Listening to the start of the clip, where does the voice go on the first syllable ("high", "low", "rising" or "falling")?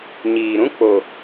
low